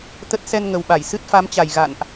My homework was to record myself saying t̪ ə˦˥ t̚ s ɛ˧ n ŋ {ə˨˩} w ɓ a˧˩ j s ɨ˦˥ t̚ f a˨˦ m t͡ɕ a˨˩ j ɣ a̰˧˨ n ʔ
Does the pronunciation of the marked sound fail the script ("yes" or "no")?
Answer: no